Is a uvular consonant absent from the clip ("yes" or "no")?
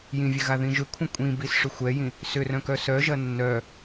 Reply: yes